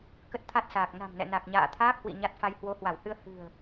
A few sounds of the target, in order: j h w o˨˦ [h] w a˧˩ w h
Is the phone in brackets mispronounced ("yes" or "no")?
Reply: no